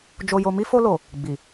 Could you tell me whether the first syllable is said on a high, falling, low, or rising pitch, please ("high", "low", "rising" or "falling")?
low